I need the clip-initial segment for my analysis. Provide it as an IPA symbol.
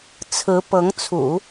t͡sʰ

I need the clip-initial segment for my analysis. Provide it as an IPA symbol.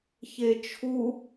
ç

